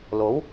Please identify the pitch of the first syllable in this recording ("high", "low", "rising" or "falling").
rising